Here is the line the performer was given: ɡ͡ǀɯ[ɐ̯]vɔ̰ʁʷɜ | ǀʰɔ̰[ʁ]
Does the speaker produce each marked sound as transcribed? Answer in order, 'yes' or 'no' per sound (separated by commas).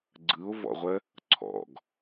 no, no